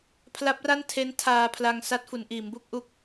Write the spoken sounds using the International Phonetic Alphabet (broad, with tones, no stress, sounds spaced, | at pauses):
pʰ l a˦˥ p̚ r a˥˩ n tʰ e˦˥ n tʰ aː˧ pʰ l a˧ ŋ s a˦˥ t̚ f u˩˦ n ʔ iː˩˦ m b u˥˩ k̚ ʔ u˦˥ k̚